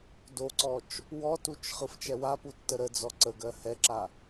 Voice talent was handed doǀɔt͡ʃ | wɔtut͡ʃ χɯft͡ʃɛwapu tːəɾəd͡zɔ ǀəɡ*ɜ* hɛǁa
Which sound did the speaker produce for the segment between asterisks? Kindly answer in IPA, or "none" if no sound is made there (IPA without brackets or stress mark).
ɜ